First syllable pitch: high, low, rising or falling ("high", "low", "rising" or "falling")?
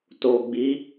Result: low